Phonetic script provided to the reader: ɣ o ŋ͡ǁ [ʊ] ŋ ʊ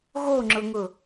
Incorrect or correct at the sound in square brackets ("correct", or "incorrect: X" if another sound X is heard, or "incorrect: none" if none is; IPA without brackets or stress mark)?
correct